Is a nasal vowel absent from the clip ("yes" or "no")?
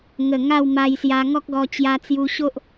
yes